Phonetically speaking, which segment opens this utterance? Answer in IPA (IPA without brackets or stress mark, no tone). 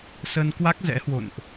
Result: s